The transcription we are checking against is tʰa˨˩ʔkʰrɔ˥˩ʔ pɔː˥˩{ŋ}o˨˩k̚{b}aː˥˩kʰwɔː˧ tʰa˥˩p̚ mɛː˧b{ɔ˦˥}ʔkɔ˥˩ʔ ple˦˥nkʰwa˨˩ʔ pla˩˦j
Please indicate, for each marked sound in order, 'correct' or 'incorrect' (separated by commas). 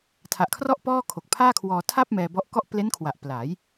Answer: incorrect, incorrect, correct